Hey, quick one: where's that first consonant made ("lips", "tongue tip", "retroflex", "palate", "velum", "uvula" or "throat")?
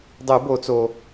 tongue tip